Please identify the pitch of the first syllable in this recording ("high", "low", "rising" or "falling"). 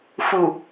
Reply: low